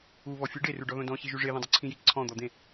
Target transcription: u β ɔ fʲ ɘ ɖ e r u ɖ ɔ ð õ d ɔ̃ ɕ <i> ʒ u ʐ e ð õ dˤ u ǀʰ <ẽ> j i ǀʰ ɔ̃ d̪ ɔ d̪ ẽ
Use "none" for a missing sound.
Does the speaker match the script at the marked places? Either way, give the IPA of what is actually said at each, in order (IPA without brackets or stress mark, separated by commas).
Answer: i, ĩ